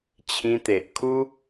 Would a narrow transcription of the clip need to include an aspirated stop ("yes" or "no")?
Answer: yes